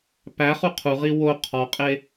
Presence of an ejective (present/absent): present